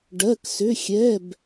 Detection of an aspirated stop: absent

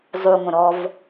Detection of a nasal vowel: present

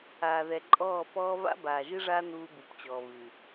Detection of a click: present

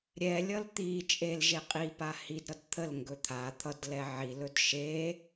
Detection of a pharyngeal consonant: present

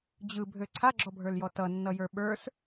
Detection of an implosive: present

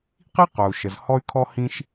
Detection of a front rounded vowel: present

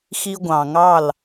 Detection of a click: absent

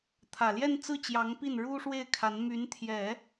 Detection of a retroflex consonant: present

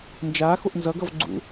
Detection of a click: present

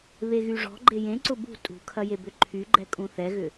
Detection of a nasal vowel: present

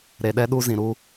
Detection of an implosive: present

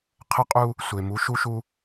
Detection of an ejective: present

